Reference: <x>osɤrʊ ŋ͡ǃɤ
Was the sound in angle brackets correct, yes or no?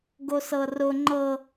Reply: no